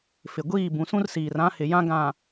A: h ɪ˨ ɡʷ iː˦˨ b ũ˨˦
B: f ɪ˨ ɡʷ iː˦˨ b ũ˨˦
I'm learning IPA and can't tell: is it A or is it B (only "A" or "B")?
B